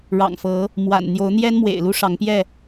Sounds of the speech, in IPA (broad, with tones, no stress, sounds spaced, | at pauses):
ɻ ɑ̰˨˩ ŋ f ɤ˨˦ | m w a̰˨˩ n n̪ j o˨˦ ʊ̯ n̪ j ɛ˦ n m w ḛ˨˩ ɪ̯ l u˦ ʂ ɑ˨˦ ŋ p j ɛ˥˨